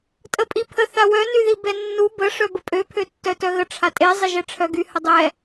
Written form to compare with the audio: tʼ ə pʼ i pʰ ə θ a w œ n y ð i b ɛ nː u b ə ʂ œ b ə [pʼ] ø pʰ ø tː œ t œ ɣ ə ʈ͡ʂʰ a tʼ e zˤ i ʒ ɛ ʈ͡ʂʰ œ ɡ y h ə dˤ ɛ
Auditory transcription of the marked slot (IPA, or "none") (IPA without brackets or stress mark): pʼ